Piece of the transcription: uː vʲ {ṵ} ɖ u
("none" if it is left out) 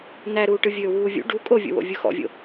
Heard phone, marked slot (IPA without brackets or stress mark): ṵ